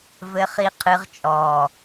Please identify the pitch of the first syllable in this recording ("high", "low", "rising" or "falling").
low